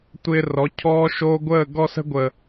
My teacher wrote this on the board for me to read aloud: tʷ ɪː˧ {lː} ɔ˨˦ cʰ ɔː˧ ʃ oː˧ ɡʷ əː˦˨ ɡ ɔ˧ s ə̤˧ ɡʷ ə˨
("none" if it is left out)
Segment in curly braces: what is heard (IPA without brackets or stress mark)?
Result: r